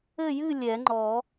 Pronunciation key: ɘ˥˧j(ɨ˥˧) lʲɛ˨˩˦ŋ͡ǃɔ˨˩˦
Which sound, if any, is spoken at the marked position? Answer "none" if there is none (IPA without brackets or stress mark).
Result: ɨ˥˧